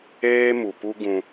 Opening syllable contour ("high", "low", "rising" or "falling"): high